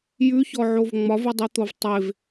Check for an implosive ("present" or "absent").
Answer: absent